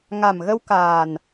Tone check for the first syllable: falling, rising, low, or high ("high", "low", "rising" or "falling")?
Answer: low